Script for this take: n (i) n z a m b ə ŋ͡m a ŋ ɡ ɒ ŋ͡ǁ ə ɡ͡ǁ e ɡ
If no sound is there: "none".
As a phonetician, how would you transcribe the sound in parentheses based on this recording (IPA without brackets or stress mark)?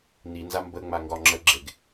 i